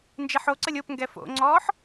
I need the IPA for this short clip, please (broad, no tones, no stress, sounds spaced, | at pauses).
n d͡ʒ e ħ o ǀ ə lʲ o p ŋ ɡ ɛ f o̰ ŋ͡ǀ ɔː ħ